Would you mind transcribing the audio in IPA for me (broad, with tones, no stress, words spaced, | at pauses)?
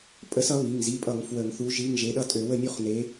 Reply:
pʼə˨˥sʌ˨˥ βi˩˧˩ŋ zi˩˧˩pʼʌ˧˩˧ŋ fwə˧˩˧ŋθu˨˥ʒi˧˥˧ŋ ʒe˩˧˩ɗʌ˥˨tʼø˧˩˧wə˥˨ nʲu˥˨χne˨˥